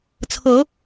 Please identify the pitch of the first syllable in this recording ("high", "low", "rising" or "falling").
rising